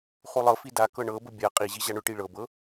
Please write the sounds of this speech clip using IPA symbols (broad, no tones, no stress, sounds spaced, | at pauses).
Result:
χ u lˠ ɤ f i d a k ɤ ɳ ɤ b ʊ bʲ a qʼ i ʑ i ʑ a ɳ ʊ ʈ i ɭ ɤ b ɤ